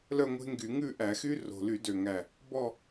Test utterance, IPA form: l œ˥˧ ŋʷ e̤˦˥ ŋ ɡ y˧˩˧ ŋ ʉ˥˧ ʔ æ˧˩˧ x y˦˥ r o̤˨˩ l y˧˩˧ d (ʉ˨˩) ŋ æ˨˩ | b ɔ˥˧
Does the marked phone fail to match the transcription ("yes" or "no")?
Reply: yes